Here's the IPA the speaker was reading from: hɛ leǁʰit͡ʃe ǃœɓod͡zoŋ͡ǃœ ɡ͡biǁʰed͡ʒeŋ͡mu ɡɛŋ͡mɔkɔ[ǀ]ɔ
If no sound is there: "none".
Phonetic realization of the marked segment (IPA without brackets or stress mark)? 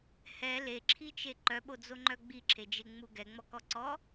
ǀ